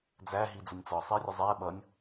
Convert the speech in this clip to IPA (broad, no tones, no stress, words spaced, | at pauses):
d͡zæɦi d͡zənʲt͡sɒ sˤiə̯rʲʊzˤɛː ɓʌnʲ